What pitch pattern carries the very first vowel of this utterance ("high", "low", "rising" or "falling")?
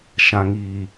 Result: low